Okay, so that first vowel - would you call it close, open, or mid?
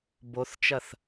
mid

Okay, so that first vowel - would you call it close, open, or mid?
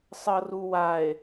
mid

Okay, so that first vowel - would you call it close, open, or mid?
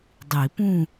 close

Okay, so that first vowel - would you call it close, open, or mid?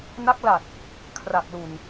open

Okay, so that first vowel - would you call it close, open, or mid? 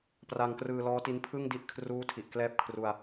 open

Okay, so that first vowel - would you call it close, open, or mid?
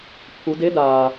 close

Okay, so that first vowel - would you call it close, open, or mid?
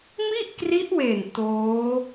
close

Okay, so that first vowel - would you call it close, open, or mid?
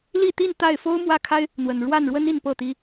close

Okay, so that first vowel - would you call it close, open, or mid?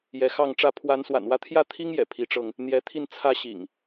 mid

